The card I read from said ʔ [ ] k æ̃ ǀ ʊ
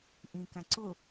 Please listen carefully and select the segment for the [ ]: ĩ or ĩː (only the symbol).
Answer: ĩ